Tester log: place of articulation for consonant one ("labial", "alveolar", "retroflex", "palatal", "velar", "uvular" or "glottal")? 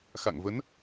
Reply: velar